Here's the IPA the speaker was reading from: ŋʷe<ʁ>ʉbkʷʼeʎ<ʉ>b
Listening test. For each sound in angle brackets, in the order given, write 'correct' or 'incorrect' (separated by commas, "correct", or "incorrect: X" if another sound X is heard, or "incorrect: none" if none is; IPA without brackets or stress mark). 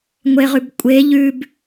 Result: correct, correct